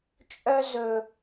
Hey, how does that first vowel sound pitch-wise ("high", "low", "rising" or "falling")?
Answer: high